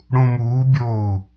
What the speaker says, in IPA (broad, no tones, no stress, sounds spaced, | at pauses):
ɽ ũ m uː bʲ oː u̯